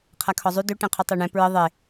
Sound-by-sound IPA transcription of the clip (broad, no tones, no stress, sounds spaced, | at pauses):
qʰ a kʰ ɔ zˤ y d ø ʈ ɛ̃ qʰ u tˤ ɛ ɳ ɛ̃ p ɹ ə ðˤ e